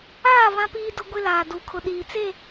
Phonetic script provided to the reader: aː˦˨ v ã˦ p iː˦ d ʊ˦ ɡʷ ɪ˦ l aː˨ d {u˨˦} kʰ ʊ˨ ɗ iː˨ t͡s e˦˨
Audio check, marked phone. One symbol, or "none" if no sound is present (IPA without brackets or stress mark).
u˨˦